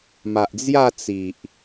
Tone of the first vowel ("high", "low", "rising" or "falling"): low